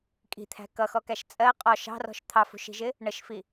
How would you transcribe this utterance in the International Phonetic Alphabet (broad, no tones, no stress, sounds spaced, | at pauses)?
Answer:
kʼ i̤ t̪ʰ æ̤ k ʌ x ɔ k æ ʃ t͡sʼ ɜ qʼ ɔ ʃ ɑ̤ r ɔ̤ ʃ t̪ʰ ɑ f ṳ ʃ i̤ ʒ ɪ | ɳ ə ʃ f i